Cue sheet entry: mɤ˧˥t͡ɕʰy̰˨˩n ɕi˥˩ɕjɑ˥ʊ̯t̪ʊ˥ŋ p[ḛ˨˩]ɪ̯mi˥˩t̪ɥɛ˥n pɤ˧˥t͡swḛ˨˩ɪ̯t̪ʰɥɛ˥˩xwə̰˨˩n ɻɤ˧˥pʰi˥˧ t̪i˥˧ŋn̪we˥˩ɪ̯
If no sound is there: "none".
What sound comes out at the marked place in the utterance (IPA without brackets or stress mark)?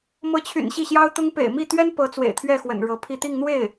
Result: ḛ˨˩